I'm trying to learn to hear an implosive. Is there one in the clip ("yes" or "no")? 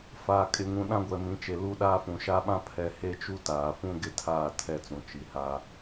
yes